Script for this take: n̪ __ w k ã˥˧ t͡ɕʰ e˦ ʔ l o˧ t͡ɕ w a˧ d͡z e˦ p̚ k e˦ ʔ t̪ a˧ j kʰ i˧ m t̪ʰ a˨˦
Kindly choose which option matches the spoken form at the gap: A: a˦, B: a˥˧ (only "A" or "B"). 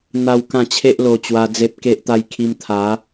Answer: A